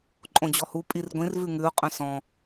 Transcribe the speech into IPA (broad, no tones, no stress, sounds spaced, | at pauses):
ǃʼ õ d͡ʑ ɔ h u pʼ i r ɡʷ ĩ r v ʉ ŋ ʉ ʊ̯ qʼ œ̃ s ɔ̃